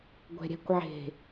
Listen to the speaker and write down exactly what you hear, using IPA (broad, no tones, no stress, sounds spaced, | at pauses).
ɡʷ ɛ̤ ɾʲ ɛ̤ kʷ ʕ e̤